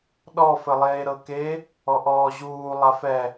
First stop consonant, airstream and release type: implosive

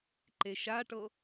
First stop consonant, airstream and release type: click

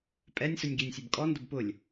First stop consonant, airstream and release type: ejective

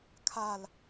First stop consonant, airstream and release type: aspirated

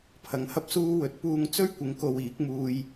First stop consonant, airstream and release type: aspirated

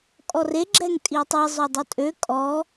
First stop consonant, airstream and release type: ejective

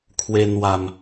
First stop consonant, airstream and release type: aspirated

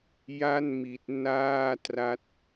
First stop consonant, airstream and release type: plain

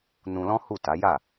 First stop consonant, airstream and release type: plain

